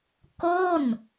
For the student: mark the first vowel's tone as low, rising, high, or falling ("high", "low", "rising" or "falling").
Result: falling